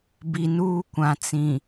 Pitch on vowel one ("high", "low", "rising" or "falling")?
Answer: low